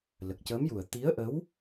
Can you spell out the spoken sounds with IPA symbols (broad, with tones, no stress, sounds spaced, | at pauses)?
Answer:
l ə˨˩ k̚ c əː˧˥ m j u˨˩ ə̯ t̪ i˧˥ ə̯ ʔ ə˧˥ w